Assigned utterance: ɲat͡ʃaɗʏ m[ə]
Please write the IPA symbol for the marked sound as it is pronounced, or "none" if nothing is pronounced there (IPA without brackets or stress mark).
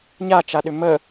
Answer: ə